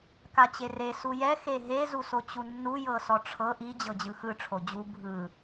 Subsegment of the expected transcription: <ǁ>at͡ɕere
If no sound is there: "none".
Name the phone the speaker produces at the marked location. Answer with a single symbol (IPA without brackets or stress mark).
k